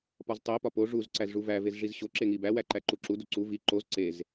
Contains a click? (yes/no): yes